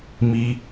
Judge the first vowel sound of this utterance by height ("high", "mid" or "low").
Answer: high